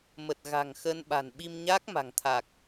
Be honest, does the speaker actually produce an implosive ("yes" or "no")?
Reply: yes